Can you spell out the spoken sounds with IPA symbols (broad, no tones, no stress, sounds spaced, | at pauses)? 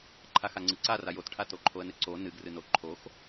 ǃʰ a x a ŋ͡ǀ ɨ ǀ a r a j o t ʈʰ a t o ǃʰ o ə̯ n ɨ ǀ o n ɨ ɡ r ɨ n o ǃʰ o x